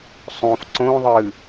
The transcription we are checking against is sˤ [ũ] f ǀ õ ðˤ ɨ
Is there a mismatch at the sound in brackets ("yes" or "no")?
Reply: yes